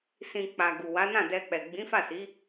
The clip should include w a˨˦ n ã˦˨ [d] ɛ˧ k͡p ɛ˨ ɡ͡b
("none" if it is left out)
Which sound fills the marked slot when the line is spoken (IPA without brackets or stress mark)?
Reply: d